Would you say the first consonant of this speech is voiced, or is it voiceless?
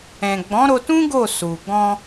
voiced